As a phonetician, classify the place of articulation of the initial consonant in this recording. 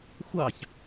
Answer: velar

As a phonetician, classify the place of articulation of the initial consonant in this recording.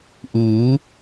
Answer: glottal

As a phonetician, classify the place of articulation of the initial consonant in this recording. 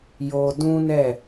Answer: palatal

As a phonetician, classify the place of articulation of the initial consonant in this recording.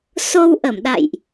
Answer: alveolar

